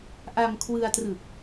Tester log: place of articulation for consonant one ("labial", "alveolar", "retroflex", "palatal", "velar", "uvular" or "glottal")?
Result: glottal